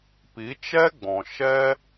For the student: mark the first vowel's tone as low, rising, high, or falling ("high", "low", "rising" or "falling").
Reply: rising